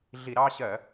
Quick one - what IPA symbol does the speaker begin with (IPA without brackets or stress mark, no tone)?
ɮ